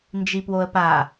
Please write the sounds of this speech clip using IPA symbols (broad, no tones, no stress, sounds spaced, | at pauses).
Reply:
n d͡ʒ i p w o ə̯ p a